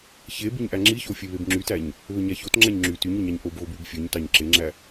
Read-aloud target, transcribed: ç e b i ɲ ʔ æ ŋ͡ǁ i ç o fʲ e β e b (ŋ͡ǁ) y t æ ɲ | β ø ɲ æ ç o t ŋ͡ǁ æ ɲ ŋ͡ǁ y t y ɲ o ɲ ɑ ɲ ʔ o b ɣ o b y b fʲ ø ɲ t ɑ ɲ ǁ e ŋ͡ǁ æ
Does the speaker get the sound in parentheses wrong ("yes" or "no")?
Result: no